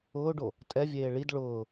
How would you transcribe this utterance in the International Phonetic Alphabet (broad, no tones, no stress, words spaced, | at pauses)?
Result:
ʊːɖo | tʼɛvʲeː ɭid ɭʊː